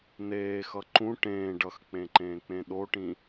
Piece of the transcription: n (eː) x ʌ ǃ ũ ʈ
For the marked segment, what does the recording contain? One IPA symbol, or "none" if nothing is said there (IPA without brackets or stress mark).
eː